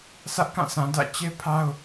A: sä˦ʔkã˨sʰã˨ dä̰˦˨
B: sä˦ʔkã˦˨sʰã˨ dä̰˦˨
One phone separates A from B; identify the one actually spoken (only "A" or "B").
B